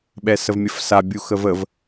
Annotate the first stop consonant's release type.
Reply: implosive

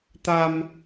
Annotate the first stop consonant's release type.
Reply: plain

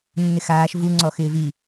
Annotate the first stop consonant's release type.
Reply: click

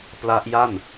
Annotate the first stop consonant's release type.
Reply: plain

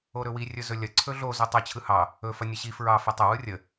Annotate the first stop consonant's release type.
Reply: click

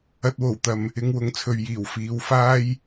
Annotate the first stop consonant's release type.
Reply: plain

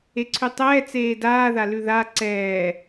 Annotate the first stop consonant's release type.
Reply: click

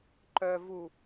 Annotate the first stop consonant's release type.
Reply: click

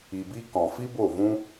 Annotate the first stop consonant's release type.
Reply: plain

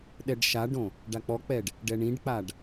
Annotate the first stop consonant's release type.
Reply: implosive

